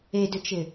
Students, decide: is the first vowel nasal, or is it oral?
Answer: oral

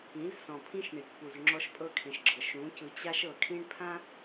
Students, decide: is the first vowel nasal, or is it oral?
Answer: nasal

